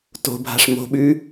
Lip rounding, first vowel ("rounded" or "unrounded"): rounded